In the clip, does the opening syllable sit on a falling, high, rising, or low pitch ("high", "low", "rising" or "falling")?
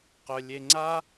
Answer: low